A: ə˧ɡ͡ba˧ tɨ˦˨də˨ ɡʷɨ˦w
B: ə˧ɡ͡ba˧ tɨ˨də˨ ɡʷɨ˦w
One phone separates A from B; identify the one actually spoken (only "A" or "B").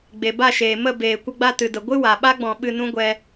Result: B